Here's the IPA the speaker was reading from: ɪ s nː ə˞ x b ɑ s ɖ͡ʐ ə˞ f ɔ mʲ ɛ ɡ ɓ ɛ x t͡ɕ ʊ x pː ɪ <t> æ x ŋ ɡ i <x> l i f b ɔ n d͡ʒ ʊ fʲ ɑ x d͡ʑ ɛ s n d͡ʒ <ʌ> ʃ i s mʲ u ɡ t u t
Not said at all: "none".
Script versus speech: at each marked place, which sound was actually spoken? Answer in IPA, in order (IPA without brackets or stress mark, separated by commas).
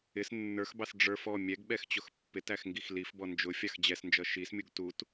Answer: t, x, ʌ